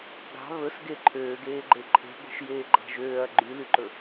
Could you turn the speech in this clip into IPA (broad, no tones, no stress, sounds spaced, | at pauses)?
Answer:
ɡ ɑ̤ β ɵ s ɡ e ǃʰ øː ɡ eː ɡ͡ǃ e ǃʰ e̤ ɡʷ e̤ ʃ j eː ɡ͡ǃ ɑ̤ ʒ øː ɐ̯ ɡ͡ǃ y l y ǃ ɵ